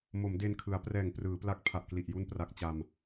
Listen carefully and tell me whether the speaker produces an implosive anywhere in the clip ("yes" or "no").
no